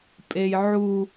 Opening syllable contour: high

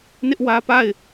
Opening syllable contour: high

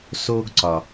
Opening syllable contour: high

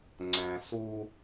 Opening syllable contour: low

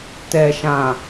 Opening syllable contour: low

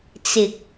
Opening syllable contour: low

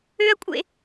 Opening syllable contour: high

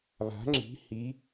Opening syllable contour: rising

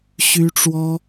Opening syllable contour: high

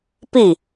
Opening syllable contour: falling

